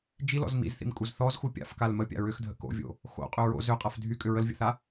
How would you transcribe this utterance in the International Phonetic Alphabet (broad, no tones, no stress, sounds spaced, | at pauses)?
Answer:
d͡ʒ i l ɔ̰ z m ḭ z θ ḭ m kʼ u z θ ɔ z x u pʲ a̰ f k a l m ə pʲ a̰ ɹ ʏ x dʱ ə̰ k o̰ vʲ o̰ | x o̰ qʼ ʏ ɹ o̰ z ʏ qʼ a f dʱ y kʼ ʏ ɹ ə l vʲ ə̰ θ a